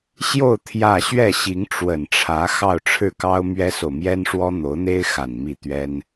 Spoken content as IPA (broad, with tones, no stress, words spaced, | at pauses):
ɕjo˥˧ʊ̯ t̪ʰjä˥˧ ɕɥɛ˥˩ɕi˧˥ŋʈ͡ʂwə˨˩nʈ͡ʂʰä˧˥ xɑ˥˧ʊ̯ʈ͡ʂʰɻ̩˥˩kɑ˥ʊ̯ mɥɛ˥so˨ʊ̯mjɛ˥nʂwɔ˥ n̪o˧˥ʊ̯n̪e˥ɪ̯xa˨˩n mi˥˩t̪ɥɛ˥n